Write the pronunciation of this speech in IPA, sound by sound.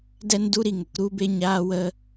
d ɛ˦ n d u˦ ɾ i˧ ŋ ə˨ k ɾ u˦ b e˦ ɲ aː˦ w ə˦

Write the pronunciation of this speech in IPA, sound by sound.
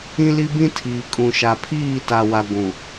ĩ˦ l i˦ b ĩ˦ tʰ iː˨ kʼ ũ˨ ʃ a˨ pʰ iː˦˨ t a˨ w a˨ ɡʷ ũ˨

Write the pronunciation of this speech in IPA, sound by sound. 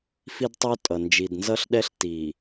f i˦ d tˤ o˦ tʼ ʌ˨ n d͡ʒ i˨ d n z ʌ˦ ɬ ɗ ɛ˦ ɬ t i˨

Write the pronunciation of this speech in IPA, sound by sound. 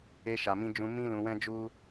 e˧ ʃ a˨ m ĩ˧ d͡ʒ ũ˧ m ĩ˦ l ũ˧ w ɛ̃˦ d͡ʒ u˦

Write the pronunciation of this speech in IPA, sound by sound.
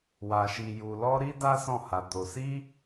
w a˧ ʃ i˧ j u˧ l ɔ˦ ɾ i˦ d a˦ s ɔ̃˦˨ h a˧ d o˧ s i˦

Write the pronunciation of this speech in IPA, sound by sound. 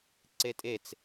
ǀ e tʼ e t͡s

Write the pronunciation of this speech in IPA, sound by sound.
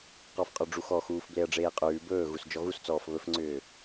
q ɔ f qʼ ɔ ɖ͡ʐ u x ɔ x uː f b l e ɐ̯ ɖ͡ʐ eː qʼ ʉː b ɵː ɣ u s d͡ʒ ɔ ɣ u s t͡s ɔː f β ɵ f ŋ͡ǀ ʏː

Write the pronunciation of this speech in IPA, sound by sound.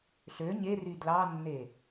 ɬ ø ɲ e r y d l ɑ nː e

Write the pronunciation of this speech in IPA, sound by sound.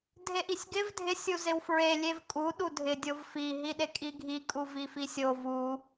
dʱ e ʔ i sʲ ɡ ɪ v dʱ ɪ sʲ u z ɪ w f ɹ e lʲ e v kʼ u ɗ u dʱ ɪ dʲ o v f i ɦ i ɗ e kʼ i ɡʱ i kʼ u v i f i sʲ o v u

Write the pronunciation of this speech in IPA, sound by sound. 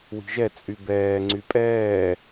w i̤ ʒ ɛ t͡sʼ y b ɛː ŋ͡ǀ y pʼ ɛː

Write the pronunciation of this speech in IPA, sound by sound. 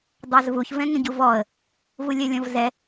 dˤ ɑ z v u ç v ɛ̃ ŋ ə̃ ɟ u v ɔ ə̯ | v u lʲ ɜ lʲ ɔ̃ v z ɛ

